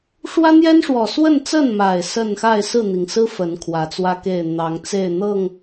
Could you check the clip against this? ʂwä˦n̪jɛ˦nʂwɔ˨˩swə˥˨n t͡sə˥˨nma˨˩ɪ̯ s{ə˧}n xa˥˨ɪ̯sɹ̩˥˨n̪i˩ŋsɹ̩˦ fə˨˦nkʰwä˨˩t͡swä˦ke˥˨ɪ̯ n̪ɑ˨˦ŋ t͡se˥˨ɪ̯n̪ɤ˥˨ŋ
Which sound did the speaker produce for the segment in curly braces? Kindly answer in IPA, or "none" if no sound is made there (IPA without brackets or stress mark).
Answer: ə˥˨